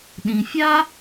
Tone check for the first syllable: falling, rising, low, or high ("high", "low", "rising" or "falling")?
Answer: low